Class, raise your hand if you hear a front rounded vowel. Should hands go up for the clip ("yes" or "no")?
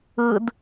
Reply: no